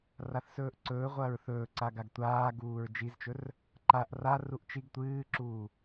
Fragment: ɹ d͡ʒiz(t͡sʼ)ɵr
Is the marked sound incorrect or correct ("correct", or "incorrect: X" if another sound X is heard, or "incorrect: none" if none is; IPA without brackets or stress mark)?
incorrect: t͡ʃ